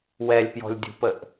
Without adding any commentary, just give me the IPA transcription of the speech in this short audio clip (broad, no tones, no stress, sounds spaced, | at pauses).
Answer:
w ɛ lʲ p j ɔ̤ lʲ dʲ ṳ p ə ʔ